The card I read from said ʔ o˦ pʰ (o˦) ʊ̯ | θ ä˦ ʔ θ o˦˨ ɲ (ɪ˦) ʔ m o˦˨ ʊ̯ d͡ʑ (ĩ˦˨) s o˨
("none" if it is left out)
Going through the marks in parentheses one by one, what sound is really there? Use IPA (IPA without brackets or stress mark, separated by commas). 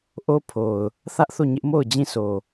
o˨, ɪ˦, ĩ˦˨